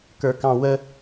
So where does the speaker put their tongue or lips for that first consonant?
velum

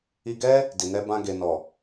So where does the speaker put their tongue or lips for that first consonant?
velum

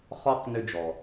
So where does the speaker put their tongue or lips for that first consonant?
uvula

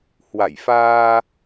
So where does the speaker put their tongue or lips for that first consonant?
throat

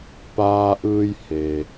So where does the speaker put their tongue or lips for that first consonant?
lips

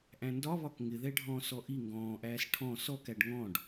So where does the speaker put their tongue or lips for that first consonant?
throat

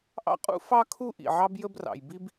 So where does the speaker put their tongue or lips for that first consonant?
throat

